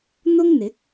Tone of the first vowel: high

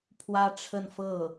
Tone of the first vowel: high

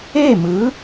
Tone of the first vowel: falling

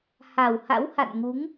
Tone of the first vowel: low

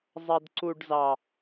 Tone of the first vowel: high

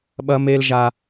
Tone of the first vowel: high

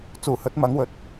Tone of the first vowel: low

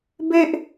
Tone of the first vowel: high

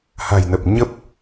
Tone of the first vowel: low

